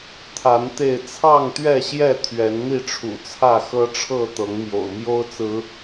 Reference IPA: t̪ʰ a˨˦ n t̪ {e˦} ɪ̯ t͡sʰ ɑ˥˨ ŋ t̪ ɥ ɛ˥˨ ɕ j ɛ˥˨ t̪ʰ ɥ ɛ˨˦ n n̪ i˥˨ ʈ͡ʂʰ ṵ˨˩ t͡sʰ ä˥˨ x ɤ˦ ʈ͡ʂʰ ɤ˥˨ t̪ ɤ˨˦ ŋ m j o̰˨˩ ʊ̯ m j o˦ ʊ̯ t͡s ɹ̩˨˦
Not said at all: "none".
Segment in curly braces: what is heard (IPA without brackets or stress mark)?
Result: e˥˨